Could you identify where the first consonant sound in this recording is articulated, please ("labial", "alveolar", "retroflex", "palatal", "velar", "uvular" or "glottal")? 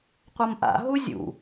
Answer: uvular